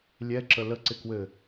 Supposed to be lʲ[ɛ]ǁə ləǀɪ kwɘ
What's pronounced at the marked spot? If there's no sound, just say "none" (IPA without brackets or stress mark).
ɛ